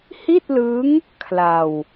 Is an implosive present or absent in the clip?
absent